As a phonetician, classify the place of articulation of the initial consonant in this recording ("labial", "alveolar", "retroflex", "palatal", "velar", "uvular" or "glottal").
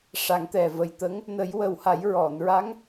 retroflex